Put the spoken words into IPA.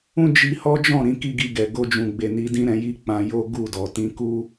ũ˦ d͡ʒ i˧ h ɔ˦ d͡ʒ ɔ̃˦˨ ɾ ĩ˧ k i˦ ɡ i˧ ɡ ɛ˨ ɡ o˧ d͡ʒ ũ˨ ɡ͡b e˨ n i˧ d ĩ˦ ɾ ɛ̃˧ j i˦ k͡p ã˧ j o˦ ɡ u˦˨ d ɔ˨ t ĩ˧ k u˦

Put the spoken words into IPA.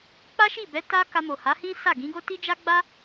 k͡p a˦ ʃ i˦˨ b ɛ˨˦ t a˦ k a˧ m o˨ h a˨˦ h ĩ˦ s a˦˨ ɡ ĩ˨˦ ɡ o˦ t i˦ d͡ʒ a˦ ɡ͡b a˦

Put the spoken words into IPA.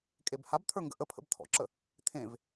kʼ e b h a b t̪ʰ ə˞ ŋ ɡ ə̰ ʔ ə pʰ ə̰ b t̪ʰ ɔ̰ ǁ ə | t̪ʰ ẽ v

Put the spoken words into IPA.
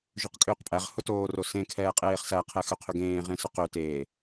ʒ ø q kʼ ʏː q pʼ æ ʁ h ʊ t oː r o s ẽ kʰ ɛː qʼ eː χ s æ qʰ ɛ x ø qʰ ʏ ɡ ẽː ʁ ẽ s ʊ q ø t eː

